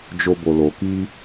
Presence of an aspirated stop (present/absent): absent